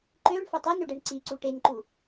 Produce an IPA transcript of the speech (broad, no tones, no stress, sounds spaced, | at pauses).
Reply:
ǃ ø ɳ f ɐ tˤ ɛ n ø ɖ ɛ ɳ ǀ i ǀ u ʈ e n ǃ u